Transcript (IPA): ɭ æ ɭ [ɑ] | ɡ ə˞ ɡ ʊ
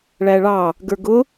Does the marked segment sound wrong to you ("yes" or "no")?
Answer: no